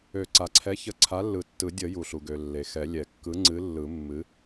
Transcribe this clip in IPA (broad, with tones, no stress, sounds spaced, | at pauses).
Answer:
ø˨˩˦ ǀ a˩ ǀʰ ɛ˨˥ ç ə˨˥ ǀʰ a˨˥ lː ɯ˨˩˦ tː ɯ˨˩˦ dʲ ə˨˩˦ j u˩ ɬ u˩ ɡ ø˩ lː e˩ x ɛ˨˩˦ lʲ ɛ˩ kː ɯ˨˥ ŋ͡ǀ ɨ˨˥ lː ɯ˨˩˦ mː ɨ˨˥